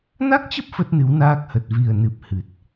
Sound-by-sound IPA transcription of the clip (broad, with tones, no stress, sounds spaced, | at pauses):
n a˦˥ k̚ t͡ɕ ə˦˥ p̚ f ə˦˥ t̚ n ɨ˨˦ w n aː˦˥ k̚ h ə˨˩ t̚ v i˨˩ ə̯ n ɨ˨˩ p̚ h ɨ˨˩ t̚